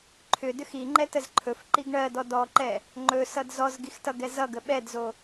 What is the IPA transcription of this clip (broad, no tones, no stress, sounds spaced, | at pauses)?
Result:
ǃʰ ʏ d ʏ x i ŋ͡ǃ ɛ t ə z ǃʰ ɵ f ǃ i ɡ ɳ ɜ d ɔ d ɔ ǃ ɛ | ŋ͡ǃ ɵ s ʌ d z ɔ z ɡ i x t ʌ ɡ ɛ z ʌ ɡ ə ɓ ɛ d z o